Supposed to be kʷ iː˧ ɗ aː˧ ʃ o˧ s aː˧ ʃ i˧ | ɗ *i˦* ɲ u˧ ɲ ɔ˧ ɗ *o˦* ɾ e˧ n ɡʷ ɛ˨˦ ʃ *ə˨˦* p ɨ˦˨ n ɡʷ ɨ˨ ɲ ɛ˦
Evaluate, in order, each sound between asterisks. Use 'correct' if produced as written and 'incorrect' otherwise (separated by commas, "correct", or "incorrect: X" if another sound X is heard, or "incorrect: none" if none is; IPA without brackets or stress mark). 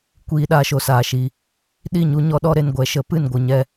incorrect: i˦˨, incorrect: ɔ˦, correct